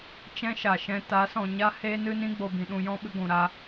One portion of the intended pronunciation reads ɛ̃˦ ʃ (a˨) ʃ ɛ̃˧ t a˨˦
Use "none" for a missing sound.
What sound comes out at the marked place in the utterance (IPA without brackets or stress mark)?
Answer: a˨